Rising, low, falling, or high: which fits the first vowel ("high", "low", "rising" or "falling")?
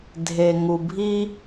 low